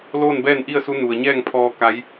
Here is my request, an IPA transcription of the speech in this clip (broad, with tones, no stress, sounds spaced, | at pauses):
l oː˥˨ n b ɛː˥˨ n ʔ i˥˨ ə̯ s u˧˥ n u˩ ə̯ ɲ ɛː˥˨ ŋ pʰ ɔː˧ k a˧˥ j